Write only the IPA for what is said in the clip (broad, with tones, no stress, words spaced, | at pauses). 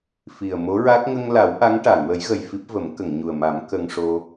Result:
fi˨˩ə̯mo˧˥ɹa˦˥k̚ ŋə˧ŋla˨˩˦w ʔa˧˥ŋ ʈa˨˩˨ŋwə˨˩˦jɣə˨˩j fi˦˥p̚və˨˩˦m kə˨˩˨ŋɲu˨˩ə̯ma˨˩˦m kə˧ŋʂo˧